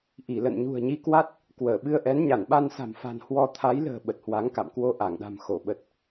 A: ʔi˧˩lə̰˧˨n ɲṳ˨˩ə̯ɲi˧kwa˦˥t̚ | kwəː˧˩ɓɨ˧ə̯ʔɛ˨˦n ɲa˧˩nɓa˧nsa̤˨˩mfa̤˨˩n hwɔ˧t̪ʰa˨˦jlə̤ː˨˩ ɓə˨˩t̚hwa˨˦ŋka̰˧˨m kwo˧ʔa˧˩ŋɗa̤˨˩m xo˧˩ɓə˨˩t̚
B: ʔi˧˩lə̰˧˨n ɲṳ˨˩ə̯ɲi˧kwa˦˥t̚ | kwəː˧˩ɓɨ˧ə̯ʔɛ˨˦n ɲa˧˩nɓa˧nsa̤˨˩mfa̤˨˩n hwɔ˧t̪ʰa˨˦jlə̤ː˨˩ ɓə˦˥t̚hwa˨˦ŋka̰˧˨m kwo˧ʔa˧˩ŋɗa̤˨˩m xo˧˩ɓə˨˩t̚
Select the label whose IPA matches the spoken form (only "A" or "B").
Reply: A